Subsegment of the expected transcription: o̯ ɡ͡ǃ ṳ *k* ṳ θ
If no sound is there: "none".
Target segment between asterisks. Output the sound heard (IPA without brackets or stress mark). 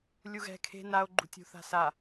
tʲ